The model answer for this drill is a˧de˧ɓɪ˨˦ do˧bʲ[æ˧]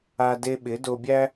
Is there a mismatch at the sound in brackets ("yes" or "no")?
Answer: yes